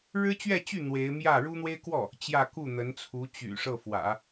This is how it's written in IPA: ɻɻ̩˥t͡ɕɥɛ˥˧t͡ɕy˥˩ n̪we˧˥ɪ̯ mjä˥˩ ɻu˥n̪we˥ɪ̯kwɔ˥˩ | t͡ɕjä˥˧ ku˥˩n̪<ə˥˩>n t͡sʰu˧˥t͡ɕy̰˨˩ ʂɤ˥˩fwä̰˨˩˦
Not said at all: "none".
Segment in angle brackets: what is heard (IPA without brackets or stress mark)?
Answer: ə˧˥